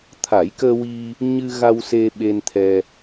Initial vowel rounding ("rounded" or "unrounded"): unrounded